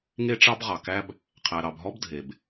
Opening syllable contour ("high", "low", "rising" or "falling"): high